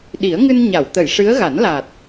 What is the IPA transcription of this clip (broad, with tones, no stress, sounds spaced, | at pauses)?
ɗ i˨˩˦ ə̯ ŋ ɨ˧ n ɲ a˨˩˨ w t̪ ə˨˩˨ j ʂ ɨ˧˥ ə̯ ɣ a˨˩˦ n l aː˨˩ t̚